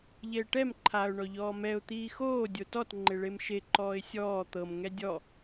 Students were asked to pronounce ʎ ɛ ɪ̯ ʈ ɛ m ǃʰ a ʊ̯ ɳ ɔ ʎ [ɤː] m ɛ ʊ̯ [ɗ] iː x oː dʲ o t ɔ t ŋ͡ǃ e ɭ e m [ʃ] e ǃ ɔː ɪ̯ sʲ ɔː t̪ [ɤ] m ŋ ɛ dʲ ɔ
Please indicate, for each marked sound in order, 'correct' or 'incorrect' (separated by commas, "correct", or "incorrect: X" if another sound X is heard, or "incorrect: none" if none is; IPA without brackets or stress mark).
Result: incorrect: ɔː, incorrect: t̪, correct, correct